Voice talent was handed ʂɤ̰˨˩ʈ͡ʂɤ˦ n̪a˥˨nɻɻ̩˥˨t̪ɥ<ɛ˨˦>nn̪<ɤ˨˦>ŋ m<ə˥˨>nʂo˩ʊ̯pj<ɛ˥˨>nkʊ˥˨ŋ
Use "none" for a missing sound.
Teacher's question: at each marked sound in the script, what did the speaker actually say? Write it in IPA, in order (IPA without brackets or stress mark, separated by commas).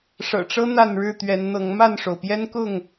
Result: ɛ˨˦, ɤ˨˦, a˥˨, ɛ˦